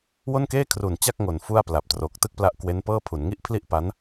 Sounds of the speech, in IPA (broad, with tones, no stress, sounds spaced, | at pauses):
w o˥˩ n k eː˥˩ kʰ r u˨˩ n t͡ɕ a˥˩ k̚ ŋ o˨˩ n f u˥˩ a̯ p l a˨˩ p̚ t r o˨˩ k̚ t ɯ˥˩ k̚ p l a˦˥ ʔ k w e˦˥ n p ɤː˥˩ pʰ u˩˦ n ŋ i˥˩ ʔ pʰ l i˥˩ ʔ p a˦˥ n